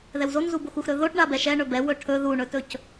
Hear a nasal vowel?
no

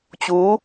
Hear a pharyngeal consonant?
no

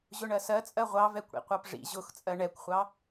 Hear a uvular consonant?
yes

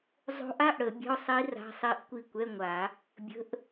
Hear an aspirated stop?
no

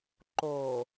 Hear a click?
yes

